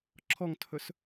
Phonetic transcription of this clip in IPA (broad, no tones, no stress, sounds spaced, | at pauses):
ǁʰ ɔ ŋ tʰ ɵ s